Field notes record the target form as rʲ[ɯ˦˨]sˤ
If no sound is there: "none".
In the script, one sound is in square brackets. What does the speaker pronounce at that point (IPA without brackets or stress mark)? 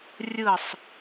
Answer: ɯ˦˨